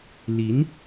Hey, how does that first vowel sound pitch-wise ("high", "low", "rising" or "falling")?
rising